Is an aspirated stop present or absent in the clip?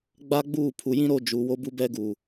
present